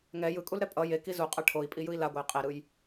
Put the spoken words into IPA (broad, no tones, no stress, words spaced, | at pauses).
ŋɛ jɯkʼulɾɛ pʼʌ je kizuqʼʌ ʈʰoi̯pʼijɯi̯ laɡʷej qʼeɾɯj